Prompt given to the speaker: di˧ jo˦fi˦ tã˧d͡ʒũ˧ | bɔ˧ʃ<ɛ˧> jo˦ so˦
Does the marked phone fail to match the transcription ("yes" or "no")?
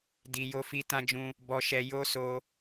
no